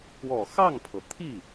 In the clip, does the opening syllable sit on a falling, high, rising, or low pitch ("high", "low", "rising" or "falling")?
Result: low